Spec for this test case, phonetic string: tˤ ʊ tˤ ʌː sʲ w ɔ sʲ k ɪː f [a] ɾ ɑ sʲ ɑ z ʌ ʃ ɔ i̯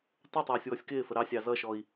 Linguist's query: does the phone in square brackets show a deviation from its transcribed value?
yes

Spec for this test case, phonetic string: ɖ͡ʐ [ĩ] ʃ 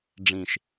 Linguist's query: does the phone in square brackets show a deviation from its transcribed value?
no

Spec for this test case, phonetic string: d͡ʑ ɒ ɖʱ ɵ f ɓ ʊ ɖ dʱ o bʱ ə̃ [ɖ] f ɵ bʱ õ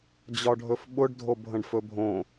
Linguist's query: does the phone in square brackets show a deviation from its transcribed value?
no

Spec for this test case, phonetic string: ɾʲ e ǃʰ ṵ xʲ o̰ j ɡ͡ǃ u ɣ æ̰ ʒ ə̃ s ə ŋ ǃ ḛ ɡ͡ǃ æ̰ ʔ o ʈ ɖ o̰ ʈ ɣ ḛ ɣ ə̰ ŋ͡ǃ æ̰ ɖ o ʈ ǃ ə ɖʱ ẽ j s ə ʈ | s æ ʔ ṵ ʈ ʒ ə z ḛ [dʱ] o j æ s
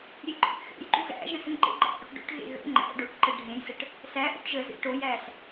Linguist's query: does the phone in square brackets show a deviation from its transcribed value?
yes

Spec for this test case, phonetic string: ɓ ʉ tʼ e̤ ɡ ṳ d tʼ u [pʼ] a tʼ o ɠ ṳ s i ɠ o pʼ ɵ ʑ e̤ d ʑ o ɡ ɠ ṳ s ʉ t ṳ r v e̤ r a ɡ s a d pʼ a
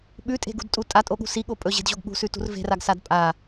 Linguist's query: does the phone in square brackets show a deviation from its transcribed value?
yes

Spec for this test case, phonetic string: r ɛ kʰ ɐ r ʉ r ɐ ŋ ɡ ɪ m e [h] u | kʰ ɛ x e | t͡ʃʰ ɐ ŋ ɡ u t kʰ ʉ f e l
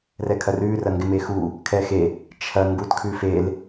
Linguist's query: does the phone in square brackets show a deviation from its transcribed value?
yes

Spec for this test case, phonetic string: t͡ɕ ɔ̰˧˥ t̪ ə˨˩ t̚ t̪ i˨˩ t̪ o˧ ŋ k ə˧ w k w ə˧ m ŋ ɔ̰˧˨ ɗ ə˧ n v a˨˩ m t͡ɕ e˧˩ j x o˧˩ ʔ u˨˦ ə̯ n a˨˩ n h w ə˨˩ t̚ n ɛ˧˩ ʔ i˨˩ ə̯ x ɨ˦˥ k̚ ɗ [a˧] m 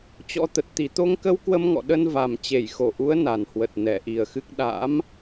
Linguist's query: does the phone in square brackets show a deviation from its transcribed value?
yes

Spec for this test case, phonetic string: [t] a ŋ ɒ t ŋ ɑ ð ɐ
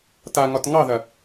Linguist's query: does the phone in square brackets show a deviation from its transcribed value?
no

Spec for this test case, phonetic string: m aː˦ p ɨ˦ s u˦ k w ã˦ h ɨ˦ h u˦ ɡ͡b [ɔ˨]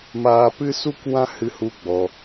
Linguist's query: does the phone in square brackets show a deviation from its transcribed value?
yes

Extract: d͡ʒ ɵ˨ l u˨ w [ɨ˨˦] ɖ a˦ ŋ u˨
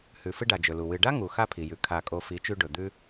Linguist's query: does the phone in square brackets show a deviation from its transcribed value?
yes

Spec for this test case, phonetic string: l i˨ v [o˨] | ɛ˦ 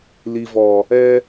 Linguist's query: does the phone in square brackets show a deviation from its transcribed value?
yes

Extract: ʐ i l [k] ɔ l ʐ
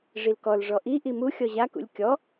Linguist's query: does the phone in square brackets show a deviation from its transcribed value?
no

